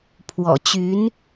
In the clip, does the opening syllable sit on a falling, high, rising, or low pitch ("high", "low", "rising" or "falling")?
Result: low